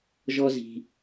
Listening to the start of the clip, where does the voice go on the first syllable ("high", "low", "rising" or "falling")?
high